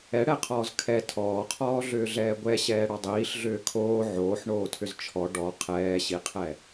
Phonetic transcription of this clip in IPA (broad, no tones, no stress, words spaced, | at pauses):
ɛɽɛqʰɔːz kʰɛ tʰɔːqʰɔːɮʏːɮɛː ɡʷɛɕɛːɽɔ dˤiːɬɮʏː kʰoː ʕoːħɳoːtʰʏz t͡ʃʰɔ ɖɔ qʰɛːɕiqʰɛ